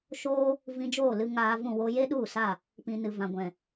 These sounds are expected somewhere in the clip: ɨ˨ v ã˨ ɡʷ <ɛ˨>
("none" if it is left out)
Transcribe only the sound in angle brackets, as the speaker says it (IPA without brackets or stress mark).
ɛ̃˨